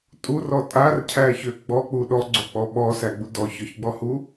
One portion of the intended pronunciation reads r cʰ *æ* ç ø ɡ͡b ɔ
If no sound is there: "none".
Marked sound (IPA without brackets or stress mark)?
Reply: æ